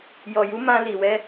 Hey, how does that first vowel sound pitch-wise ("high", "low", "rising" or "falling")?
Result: low